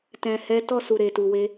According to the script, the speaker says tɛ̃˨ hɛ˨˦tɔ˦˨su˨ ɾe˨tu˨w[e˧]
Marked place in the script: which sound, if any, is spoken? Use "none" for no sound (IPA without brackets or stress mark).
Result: e˧